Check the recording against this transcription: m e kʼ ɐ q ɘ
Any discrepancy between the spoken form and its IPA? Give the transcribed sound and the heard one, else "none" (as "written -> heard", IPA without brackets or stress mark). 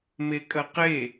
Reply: ɘ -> e